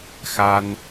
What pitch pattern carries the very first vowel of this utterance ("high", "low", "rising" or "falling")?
high